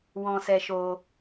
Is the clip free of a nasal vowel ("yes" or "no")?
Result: no